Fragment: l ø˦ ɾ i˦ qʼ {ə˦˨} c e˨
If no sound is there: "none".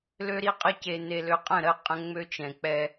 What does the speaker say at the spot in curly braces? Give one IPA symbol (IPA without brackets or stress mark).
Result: ə˦˨